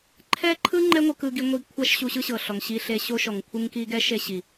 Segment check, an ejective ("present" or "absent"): absent